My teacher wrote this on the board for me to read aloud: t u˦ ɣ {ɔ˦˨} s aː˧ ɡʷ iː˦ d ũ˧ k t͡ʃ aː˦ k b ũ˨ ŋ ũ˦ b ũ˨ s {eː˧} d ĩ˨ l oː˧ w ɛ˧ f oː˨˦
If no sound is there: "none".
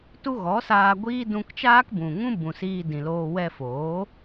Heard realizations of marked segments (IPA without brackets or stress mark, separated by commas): ɔ˨˦, iː˧